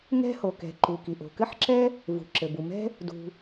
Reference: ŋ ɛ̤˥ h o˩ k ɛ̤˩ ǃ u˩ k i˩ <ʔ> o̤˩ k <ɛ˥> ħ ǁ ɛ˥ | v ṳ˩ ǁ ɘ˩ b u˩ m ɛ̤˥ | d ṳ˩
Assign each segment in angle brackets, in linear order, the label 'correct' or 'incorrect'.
correct, incorrect: ɘ˥

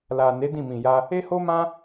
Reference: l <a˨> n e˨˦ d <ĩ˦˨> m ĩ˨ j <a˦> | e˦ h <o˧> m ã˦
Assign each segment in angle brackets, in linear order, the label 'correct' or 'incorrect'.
correct, correct, incorrect: a˧, incorrect: o˦

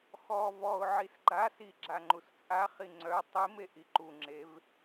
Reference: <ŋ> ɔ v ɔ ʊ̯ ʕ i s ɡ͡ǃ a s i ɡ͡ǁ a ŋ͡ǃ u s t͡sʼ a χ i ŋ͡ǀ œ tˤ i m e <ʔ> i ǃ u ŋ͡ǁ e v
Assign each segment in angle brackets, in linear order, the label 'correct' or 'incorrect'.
incorrect: x, correct

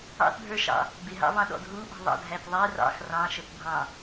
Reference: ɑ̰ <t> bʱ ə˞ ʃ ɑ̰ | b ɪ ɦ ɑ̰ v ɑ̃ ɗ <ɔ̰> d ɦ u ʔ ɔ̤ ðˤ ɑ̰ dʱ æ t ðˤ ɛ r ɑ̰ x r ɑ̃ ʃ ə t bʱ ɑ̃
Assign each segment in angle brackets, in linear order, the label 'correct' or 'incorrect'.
correct, correct

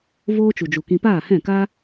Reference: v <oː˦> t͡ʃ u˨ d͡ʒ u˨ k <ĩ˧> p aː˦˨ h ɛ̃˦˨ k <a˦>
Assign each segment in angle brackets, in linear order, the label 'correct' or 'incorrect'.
correct, correct, correct

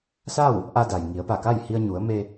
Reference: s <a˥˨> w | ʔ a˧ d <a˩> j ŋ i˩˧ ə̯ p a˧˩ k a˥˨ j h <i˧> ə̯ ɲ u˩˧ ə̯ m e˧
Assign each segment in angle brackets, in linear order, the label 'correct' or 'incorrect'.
correct, correct, correct

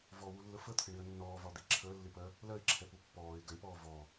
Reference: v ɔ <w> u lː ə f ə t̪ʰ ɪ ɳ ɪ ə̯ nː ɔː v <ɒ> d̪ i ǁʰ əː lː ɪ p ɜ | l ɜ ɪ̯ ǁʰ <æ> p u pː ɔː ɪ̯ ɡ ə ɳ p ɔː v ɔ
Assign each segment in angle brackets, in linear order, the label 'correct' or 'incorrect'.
correct, correct, incorrect: ɛ

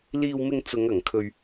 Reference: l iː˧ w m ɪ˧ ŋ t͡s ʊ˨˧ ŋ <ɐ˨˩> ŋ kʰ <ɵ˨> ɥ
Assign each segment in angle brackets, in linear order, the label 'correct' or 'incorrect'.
correct, correct

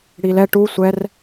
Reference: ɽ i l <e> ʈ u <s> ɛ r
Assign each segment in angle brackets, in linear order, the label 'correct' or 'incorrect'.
incorrect: ɛ, incorrect: sʷ

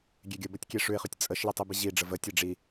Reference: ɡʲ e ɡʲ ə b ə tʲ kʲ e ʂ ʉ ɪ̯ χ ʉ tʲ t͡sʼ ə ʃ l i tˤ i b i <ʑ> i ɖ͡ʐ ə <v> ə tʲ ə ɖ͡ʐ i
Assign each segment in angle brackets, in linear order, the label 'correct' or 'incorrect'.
correct, correct

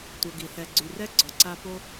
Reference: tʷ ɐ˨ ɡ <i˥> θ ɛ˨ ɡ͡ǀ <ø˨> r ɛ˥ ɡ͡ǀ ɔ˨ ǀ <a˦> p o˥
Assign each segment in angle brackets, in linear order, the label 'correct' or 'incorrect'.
incorrect: i˩, incorrect: y˨, correct

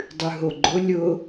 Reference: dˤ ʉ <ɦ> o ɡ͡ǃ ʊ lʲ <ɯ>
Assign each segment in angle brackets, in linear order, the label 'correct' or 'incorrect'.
correct, incorrect: ʊ

